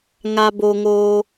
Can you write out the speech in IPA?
ŋ a˧ b o˧ ŋ oː˧

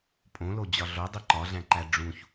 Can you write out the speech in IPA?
pʼ õ l o d͡ʑ ɒ ɮ o dˤ i ǃ ɒ ɮ æ̃ ǃ æ ɖ͡ʐ ũ ç

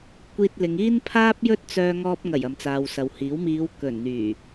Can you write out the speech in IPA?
kʷ iː˧ t̚ l ɪ˨˧ ŋ iː˥ n pʰ aː˥ p̚ j ɵ˥ t̚ t͡s œː˧ ŋ ɔː˧ p̚ ŋ ɐ˨˩ j ɐ˨ m t͡s aː˨ w s ɐ˨ w h iː˨˥ w m iː˨˧ w k ɵ˨˩ n n̪ yː˨˩

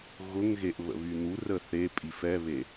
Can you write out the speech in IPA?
ɣ ʊ ŋ ɣ e ʔ β ə̰ β y n̪ u r ə θ e pʼ i f ɛ β e

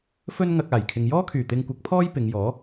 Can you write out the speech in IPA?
f ɵ˥ n ŋ ɐ˧ k̚ aː˨˩ j kʰ ɪ˨ ŋ j ɔː˥ kʰ yː˨˩ t̪ ɪ˧ ŋ kʷ ɐ˨˥ k̚ pʰ ɔː˥ j p ɪ˨˧ ŋ j ɔː˨˥

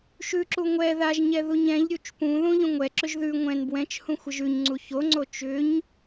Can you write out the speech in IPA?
ʃ ʉ ǁ u ŋʷ ɛ ð a ʒ ɲ ɛ ð u ɲ ɛ̃ ʎ ɾʲ u t͡ʃ p ũ ð ũ ʎ ũ ŋʷ ɛ ǁ ʏ ʒ ð ʉ ŋʷ ɛ̃ n b w ɛ̃ t͡ʃ h ũ xʷ ə ʒ ʉ ɲ ŋ͡ǀ u ç o ŋ͡ǀ o t͡ʃ ʏ ɲ

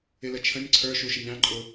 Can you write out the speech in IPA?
ɪ l ə t͡ʃʰ ə̃ nʲ ǀʰ ə˞ ʃ u ʃ ə nʲ ɾ ɑ̃ ǃʼ ʊ

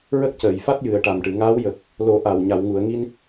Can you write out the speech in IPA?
ɹ ə˦˥ k̚ c əː˨˩˨ j f a˦˥ t̚ j ɨ˨˩ ə̯ ʈ a˨˩ m ʈ ɨ˨˩˨ ŋ aː˧˥ w j ə˨˩ k̚ | l o˨˩˦ ʔ a˨˩ w ɲ a˨˩˨ w ŋ u˨˩˨ ə̯ ŋ i˧ n

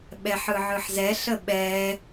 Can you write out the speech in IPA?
ɓ ɛ ħ ɯ ʕ ɯ ħ z ɛ ɬ ə ɓ ɛ

